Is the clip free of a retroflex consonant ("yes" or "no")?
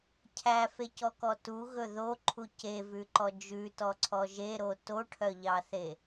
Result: no